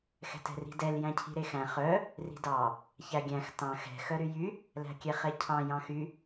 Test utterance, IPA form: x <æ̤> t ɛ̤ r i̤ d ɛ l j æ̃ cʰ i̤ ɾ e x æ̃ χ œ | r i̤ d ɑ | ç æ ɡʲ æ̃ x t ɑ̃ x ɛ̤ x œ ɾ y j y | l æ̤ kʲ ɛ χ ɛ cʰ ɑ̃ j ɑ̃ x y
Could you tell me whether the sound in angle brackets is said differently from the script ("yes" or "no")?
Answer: yes